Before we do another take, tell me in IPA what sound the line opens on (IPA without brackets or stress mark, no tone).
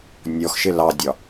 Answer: nʲ